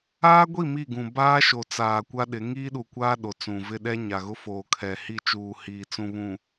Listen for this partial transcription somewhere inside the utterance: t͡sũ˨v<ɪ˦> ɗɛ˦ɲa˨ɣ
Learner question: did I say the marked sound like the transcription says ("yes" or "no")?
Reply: yes